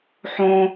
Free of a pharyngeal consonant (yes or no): no